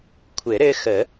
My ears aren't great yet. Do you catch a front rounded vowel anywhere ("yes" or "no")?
no